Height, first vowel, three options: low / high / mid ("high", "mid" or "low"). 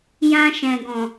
low